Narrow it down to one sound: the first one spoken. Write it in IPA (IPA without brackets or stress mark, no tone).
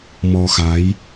m